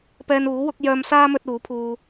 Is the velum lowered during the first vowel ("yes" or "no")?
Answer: no